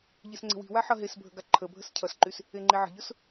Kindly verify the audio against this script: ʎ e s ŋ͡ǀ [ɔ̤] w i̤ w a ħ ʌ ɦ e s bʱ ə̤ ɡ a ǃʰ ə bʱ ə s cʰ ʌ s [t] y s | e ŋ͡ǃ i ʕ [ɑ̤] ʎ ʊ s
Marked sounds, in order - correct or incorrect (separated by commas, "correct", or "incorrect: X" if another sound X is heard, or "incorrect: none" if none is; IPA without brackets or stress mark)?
incorrect: ə̤, incorrect: ǃ, incorrect: ə̤